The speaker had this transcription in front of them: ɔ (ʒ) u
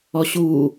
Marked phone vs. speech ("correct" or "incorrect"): incorrect